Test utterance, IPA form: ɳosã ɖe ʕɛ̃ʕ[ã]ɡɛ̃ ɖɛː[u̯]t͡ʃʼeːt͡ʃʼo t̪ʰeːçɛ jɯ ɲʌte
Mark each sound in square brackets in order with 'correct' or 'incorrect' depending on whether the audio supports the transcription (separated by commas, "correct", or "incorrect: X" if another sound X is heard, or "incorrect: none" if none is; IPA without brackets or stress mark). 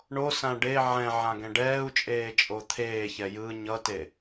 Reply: correct, correct